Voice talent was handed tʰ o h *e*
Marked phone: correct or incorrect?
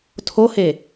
correct